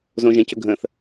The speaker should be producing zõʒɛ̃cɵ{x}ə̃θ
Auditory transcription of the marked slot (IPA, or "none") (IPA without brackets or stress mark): ɡʱ